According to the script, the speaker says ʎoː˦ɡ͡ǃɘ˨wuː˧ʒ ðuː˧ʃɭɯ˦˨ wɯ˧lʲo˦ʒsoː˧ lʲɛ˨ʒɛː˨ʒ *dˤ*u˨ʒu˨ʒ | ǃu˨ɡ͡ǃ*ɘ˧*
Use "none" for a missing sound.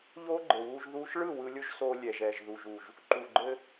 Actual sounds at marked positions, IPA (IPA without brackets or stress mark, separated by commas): ð, ɘ˧